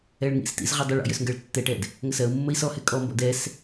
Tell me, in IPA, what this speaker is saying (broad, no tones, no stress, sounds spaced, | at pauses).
ɛ ɭ ŋ ḭ s t ḭ z ʁ ʏ dˤ ʏ ɭ ɔ̰ j ʏ s ŋ ɡ ɜ ɭ tː ɛ ʈ ɛ d | ŋ ə s ɜ u̯ mː ə i̯ s ɔ h ɛ kʼ ɔ m b ɔ̰ d ɛ s